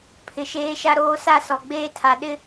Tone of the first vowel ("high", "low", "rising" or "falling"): low